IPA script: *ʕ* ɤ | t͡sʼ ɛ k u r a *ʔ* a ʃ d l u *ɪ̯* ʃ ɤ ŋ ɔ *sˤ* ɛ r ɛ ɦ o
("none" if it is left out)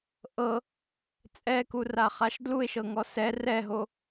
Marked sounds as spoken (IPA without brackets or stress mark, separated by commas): ʔ, χ, ɪ̯, s